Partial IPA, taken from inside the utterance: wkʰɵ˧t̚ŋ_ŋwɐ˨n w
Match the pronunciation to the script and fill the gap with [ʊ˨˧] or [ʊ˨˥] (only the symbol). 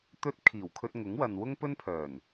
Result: ʊ˨˥